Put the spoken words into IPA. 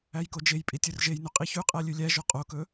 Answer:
æ j k o d͡ʒ e j pʼ i tʲ ɵ r ʒ e j n y qʼ i ç ʉ qʼ æ lʲ ʉ lʲ æ ʒ o qʼ o k ɵ

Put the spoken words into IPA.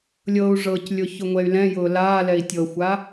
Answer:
lʲ ɤ u̯ ʐ ɤ c lʲ ʊ ç ʊ ŋʷ ɛ y̯ l ɛ̃ j ʊː l aː l ɛ i̯ tʲ ɤ xʷ a

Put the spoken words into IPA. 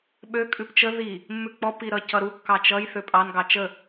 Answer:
ɓ ø kʼ ʉ p t͡ʃ ə ð i | mː ʉ k͡p ɔ p i ɾ ʌ c ʌ ɾ u kː ɑ t͡ʃ ʌ j θ ø pʼ ɑ n ɡ ɑ t͡ʃ ə

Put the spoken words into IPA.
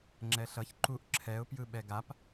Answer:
ŋ͡ǁ ɛ ɬ ʌ ç ǃ u ʔ ǁʰ ɛ ʊ̯ p j ɯ ɓ ɛ ɡ a p

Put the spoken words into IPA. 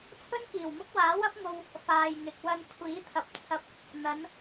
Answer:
t͡sʰ ɵ˥ n k iː˨˩ w m ʊ˥ k̚ w aː˨˥ w ɐ˥ p̚ ŋ o˧ w | f aː˨ j ŋ ɪ˨ k̚ w ɐ˧ n kʷʰ iː˨˥ t̪ʰ ɐ˨ p̚ t͡sʰ ɐ˧ p̚ | n̪ ɐ˨˧ n

